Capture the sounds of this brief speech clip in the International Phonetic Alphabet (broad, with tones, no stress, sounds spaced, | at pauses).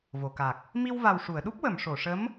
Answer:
v o˨˩˨ k a˨˩ k̚ | m i˧ w v a˨˩ w ʂ u˨˩˨ ə̯ ɗ u˦˥ p̚ w ə˨˩˨ m ʂ o˨˩˨ ʂ ə˧˥ m